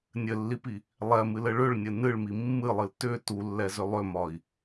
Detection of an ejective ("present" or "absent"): absent